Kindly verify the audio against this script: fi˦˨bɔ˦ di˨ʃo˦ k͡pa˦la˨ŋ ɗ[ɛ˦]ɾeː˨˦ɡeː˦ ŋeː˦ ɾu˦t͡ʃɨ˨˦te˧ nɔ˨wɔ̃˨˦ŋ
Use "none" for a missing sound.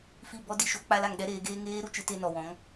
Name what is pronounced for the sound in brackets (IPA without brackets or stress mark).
ɛ˦